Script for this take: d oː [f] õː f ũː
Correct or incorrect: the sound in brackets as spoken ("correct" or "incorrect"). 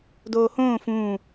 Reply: incorrect